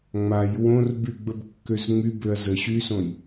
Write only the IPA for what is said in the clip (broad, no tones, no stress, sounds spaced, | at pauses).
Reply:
ŋ͡m a j w õ r b y ɡ͡b ə b kː ø z ŋ͡m y b ø ɐ̯ z ə ɕ y s õ j